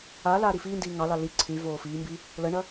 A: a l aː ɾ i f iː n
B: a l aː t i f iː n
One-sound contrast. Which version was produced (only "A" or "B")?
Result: A